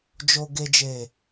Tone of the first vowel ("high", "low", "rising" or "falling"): low